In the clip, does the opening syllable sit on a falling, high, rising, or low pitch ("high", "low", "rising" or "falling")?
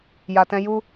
low